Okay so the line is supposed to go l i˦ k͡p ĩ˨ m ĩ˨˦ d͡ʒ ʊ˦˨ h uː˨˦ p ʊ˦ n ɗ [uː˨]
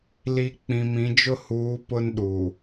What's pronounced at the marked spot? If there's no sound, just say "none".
uː˨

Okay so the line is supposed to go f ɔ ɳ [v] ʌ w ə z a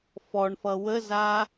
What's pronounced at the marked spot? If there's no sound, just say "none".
f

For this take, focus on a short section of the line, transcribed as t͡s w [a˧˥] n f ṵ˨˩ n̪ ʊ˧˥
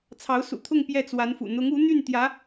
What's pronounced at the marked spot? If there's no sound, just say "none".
a˧˥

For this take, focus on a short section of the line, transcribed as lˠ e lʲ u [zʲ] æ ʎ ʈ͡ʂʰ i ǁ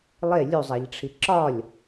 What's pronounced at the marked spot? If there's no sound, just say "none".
zˤ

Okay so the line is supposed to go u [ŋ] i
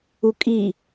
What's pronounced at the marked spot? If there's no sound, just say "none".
kʼ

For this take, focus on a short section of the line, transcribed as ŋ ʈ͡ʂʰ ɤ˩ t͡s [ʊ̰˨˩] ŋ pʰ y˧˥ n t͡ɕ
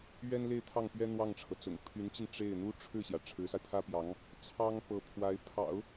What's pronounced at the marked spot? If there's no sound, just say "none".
ʊ̰˨˩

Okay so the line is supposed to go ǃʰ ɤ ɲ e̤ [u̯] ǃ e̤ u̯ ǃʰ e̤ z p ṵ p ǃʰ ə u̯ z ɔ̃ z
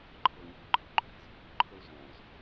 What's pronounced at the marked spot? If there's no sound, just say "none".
u̯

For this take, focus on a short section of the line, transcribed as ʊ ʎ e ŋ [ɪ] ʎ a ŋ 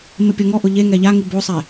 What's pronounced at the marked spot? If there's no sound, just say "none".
ɛ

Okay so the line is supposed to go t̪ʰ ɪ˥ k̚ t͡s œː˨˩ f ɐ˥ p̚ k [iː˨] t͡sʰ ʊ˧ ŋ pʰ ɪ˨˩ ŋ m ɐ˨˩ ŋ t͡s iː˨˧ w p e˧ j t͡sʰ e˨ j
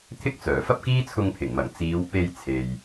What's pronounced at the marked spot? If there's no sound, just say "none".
iː˥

